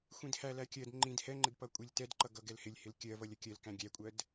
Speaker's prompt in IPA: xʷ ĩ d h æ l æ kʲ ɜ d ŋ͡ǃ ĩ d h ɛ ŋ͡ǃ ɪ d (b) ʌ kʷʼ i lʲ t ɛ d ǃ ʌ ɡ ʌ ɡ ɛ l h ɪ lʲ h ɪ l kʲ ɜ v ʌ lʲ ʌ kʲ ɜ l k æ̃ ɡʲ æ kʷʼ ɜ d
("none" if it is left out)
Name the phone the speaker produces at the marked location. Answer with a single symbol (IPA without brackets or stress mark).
p